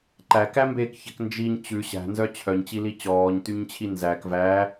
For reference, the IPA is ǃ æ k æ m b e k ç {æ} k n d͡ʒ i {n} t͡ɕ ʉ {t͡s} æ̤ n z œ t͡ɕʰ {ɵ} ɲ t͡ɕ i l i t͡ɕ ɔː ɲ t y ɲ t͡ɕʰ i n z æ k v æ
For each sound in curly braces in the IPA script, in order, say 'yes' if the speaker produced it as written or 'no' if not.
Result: no, no, no, no

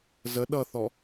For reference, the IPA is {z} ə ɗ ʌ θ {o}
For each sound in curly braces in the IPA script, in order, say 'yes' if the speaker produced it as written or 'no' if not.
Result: yes, no

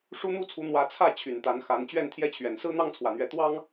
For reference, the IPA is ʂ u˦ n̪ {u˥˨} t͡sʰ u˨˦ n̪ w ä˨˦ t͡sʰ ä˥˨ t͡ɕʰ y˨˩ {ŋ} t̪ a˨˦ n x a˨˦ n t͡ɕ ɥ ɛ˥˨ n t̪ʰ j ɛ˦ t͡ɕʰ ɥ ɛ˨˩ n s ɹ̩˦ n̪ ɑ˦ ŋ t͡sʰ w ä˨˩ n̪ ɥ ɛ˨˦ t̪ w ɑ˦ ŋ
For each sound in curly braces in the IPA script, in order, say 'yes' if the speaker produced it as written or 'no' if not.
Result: yes, no

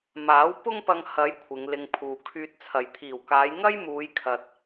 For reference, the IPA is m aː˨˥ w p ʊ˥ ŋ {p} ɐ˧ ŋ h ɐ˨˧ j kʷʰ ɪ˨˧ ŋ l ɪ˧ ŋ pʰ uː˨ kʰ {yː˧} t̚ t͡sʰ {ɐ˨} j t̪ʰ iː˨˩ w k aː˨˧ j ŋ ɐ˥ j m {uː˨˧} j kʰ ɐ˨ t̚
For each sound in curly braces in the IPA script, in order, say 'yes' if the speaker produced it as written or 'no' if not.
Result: yes, yes, yes, yes

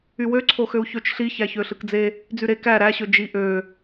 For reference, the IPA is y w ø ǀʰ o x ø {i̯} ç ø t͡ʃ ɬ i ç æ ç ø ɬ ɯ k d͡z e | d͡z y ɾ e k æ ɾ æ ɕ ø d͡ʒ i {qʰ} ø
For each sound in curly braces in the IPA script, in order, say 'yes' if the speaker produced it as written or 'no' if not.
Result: no, no

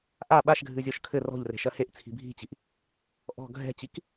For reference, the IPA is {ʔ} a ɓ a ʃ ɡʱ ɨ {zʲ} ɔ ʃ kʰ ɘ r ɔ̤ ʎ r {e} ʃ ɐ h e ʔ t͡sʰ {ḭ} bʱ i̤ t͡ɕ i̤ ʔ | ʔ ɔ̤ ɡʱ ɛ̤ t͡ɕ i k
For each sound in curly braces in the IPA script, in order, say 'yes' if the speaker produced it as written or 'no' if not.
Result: yes, yes, no, no

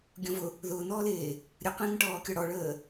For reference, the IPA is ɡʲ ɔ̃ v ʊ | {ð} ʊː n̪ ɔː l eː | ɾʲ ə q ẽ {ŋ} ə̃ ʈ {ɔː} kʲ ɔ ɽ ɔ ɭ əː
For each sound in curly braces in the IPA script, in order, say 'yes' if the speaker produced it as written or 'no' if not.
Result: yes, yes, yes

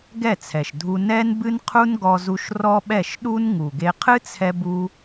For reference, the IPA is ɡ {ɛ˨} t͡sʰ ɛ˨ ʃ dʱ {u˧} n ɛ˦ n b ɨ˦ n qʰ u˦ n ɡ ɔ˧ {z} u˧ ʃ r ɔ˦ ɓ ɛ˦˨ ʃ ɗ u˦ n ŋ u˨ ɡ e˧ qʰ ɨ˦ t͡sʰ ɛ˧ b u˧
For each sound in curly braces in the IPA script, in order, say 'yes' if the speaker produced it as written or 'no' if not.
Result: no, yes, yes

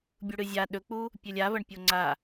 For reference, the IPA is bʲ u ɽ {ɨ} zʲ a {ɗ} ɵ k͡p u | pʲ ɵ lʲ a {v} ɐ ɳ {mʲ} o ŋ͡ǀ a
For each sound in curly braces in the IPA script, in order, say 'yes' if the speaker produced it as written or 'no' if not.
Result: yes, yes, yes, no

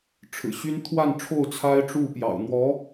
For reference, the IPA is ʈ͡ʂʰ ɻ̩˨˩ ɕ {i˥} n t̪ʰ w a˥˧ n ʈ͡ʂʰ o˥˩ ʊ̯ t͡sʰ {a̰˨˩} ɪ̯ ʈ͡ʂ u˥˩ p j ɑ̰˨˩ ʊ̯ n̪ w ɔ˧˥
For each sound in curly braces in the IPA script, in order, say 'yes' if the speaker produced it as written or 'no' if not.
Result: no, no

